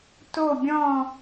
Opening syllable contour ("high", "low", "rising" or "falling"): falling